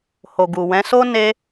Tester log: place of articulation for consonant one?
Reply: glottal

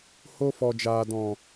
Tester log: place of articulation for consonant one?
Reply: glottal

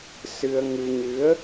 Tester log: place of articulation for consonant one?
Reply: alveolar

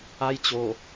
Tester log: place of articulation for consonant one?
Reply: palatal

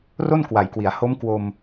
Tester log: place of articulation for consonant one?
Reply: alveolar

